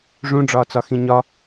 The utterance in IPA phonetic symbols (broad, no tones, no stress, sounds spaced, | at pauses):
ʐ ũ ɖ͡ʐ ɒː t͡s ɒ x ĩ ɲ ɒ